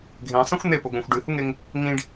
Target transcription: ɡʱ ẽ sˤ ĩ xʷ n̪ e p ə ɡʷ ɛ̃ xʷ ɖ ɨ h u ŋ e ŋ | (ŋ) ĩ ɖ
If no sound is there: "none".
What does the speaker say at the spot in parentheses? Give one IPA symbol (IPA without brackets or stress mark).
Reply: ŋ